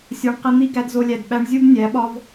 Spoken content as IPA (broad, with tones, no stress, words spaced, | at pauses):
sʲɒ˧ɳqi˧ n̪i˦ɡæ˧dzo˧lʲæ˨d ɓæ˧ɳzʲu˦b nʲæ˨˦ɓɒ˦v